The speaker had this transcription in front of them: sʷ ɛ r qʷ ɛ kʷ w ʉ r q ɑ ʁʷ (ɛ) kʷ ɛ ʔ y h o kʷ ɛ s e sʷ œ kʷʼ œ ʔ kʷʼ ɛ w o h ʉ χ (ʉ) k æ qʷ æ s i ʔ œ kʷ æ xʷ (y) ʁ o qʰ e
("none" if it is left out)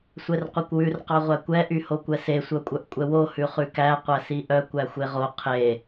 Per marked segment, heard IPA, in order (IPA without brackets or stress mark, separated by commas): æ, ʉ, e